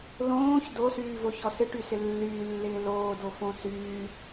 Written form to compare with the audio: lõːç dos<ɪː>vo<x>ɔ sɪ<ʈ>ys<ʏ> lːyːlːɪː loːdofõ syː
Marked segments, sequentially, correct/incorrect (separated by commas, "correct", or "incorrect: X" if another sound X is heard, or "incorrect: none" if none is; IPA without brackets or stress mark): incorrect: yː, incorrect: ç, correct, incorrect: ɪ